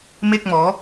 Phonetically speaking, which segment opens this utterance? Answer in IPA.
m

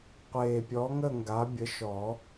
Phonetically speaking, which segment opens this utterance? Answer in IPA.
qʷ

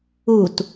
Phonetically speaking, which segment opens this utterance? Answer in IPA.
u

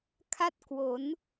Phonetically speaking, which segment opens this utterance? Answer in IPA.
kʰ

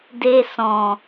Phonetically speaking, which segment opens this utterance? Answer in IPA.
d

